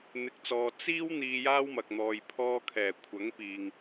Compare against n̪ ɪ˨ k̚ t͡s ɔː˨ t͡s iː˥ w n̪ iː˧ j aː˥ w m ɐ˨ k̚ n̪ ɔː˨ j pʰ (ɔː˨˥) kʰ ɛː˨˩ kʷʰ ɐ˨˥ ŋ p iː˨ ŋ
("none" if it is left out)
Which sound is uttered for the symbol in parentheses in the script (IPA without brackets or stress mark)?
ɔː˧